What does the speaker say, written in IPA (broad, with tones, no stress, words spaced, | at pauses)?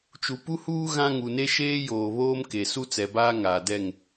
t͡ʃu˨pu˦huː˦ ɣã˦ ŋu˨ne˦ʃeː˦ joː˨βoː˦mke˨ su˦t͡sɛ˨ baː˦ ŋaː˨dɛ˦˨ŋ